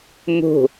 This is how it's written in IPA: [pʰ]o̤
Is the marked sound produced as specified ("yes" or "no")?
no